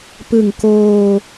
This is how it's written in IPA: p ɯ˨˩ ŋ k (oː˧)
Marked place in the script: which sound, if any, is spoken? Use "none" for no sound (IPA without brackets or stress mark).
oː˧